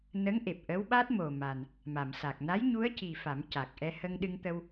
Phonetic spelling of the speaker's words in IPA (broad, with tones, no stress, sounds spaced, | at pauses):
n ə˧˥ ŋ ʔ e˨˩ p̚ ʔ əː˧˥ w ɓ aː˦˥ t̚ m o˨˩ m a˨˩ n | m a˨˩˨ m s a˨˩ k̚ n a˧˥ j ɲ u˧˥ ə̯ c i˨˩ f a˨˩˦ m c a˨˩ k̚ ʔ ɛ˧ h ə˧ ŋ ɗ ɨ˧ ŋ t̪ ə˧ w